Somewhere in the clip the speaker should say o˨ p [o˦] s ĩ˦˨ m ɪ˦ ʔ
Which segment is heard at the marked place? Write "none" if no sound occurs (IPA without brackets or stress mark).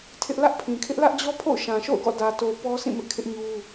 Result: ɔ˦